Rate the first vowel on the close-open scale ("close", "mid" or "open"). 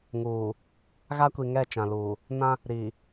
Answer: close